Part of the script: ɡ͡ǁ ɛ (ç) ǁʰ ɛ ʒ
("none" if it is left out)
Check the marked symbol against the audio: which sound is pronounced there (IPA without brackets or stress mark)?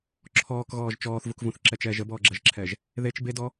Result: ʒ